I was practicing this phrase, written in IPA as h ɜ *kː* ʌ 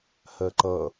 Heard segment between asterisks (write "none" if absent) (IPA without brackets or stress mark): ǃ